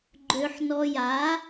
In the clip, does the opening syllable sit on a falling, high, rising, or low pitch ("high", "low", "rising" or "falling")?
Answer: low